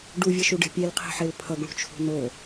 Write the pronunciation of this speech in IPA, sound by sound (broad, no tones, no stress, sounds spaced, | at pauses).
ɖ u vʲ ʌ ʃ u ɖ e̤ pʲ e l qʰ i̤ ħ e l pʰ ʌ ɡ ɭ ṳ t͡ʃʰ ṳ n o